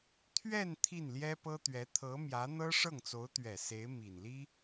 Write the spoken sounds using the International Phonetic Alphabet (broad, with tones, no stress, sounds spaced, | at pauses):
t̪ʰ ɥ ɛ˥˧ n t̪ʰ i˥˩ n l j ɛ˥ p ɤ˥ t̪ ɥ ɛ˧˥ t̪ʰ ɤ˧˥ m j ä˧˥ n̪ ɤ˥ ʂ ɤ˥˩ ŋ t͡s o˧˥ ʊ̯ t̪ ɥ ɛ˨˩ s e˧˥ ɪ̯ m i˨˩ n l i˥